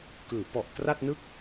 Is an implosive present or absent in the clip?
absent